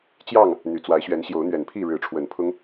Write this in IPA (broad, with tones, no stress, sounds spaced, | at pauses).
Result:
t͡ɕ j ɑ˥˨ ŋ | n̪ y˨˩ t͡s w a˨˦ ɪ̯ ɕ ɥ ɛ˨˦ n ɕ j o˨˦ ʊ̯ n̪ ɥ ɛ˨˩ n pʰ i˥˨ ɻ ɻ̩˨˦ ʈ͡ʂʰ w ə˨˩ n pʰ ʊ˦ ŋ